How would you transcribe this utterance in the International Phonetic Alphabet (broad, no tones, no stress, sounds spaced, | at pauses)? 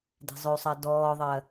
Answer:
d e̤ zˤ ʏ u̯ sˤ ɜ d ɔː ðˤ ɜ